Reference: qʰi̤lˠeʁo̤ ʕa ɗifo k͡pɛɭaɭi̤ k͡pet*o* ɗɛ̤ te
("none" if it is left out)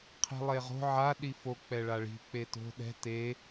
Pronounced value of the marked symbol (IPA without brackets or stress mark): o̤